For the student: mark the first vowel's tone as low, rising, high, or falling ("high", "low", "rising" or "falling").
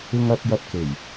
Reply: high